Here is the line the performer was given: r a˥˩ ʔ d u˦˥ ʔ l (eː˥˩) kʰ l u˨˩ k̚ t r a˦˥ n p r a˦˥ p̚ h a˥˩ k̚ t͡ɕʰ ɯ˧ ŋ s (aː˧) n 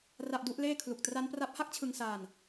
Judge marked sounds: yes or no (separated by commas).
yes, yes